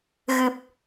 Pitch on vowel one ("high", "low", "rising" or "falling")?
low